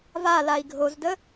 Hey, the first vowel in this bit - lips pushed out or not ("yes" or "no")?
no